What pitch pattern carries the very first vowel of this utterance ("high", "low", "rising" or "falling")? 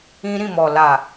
high